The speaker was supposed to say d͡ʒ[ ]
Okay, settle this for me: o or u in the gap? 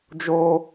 o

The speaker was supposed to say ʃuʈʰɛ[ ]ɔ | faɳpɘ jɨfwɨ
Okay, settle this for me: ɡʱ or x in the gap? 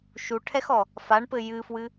x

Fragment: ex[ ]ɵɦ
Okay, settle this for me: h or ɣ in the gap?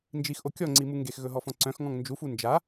ɣ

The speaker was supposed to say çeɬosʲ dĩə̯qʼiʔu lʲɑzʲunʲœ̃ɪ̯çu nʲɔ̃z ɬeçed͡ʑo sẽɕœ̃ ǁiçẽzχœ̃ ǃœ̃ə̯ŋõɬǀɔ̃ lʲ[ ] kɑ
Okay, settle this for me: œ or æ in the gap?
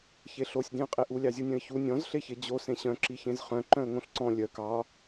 œ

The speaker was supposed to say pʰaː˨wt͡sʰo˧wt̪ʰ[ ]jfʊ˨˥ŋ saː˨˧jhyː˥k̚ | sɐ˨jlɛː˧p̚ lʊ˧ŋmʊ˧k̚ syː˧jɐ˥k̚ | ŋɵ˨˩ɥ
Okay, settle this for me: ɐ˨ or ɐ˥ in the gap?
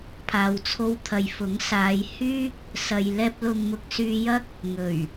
ɐ˨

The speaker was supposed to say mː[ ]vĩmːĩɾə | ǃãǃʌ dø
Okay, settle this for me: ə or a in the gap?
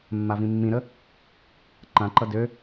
a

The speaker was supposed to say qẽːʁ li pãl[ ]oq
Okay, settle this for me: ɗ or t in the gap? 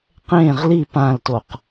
t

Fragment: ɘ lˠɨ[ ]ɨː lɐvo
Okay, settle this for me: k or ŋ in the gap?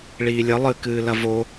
k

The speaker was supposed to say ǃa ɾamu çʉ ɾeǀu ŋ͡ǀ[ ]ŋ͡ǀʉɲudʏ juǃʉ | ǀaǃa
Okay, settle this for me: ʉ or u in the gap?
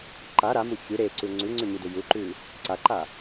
ʉ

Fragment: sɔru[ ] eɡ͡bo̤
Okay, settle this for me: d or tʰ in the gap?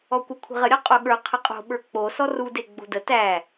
d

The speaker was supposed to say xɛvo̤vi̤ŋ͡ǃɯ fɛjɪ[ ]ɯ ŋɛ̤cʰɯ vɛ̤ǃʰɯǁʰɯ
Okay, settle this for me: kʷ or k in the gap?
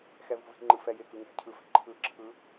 k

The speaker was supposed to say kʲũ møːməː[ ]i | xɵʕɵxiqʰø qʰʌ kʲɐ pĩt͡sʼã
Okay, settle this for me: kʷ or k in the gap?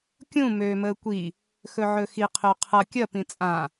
kʷ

